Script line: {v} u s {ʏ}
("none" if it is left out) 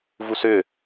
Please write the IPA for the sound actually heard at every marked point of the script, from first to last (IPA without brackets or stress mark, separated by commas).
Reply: v, ʏ